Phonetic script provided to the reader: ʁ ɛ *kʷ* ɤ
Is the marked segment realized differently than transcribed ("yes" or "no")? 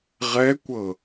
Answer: no